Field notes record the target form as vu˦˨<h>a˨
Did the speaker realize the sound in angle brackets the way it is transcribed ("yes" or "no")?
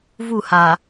yes